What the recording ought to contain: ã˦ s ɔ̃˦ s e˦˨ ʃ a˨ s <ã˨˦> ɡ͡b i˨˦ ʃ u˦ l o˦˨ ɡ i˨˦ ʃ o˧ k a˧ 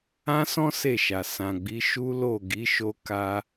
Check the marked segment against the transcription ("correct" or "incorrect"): incorrect